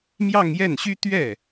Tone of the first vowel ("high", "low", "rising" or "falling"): falling